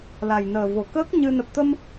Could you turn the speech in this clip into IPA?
l a˨˩ j n əː˨˩ v o˨˩ k əː˦˥ k̚ ɲ ɨ˧ n ə˨˩ p̚ t̪ ə˧ m

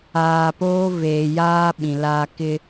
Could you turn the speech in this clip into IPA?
aː˨ p oː˦ v eː˨ j aː˦ ɓ ĩ˨ l aː˦ k ɪ˦

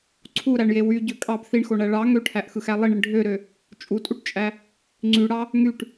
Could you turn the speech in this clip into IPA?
ǀʰ u ɾ æ ɳ j e w y ɟ ø kʼ ɑ b θ i ɳ x o ɳ æ ɭ ɑ ŋ ø ʈʰ æ ʔ x ɯ x æ lˠ i ɳ i ɳ ɖʱ ø ɾ ø | t͡ʃʼ u tʼ u ʈ t͡ʃʼ æ | ŋ͡ǀ y ɽ ɑ | ŋ y ʈ

